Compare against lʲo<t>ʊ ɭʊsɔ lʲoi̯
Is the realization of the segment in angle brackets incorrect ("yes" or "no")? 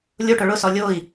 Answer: yes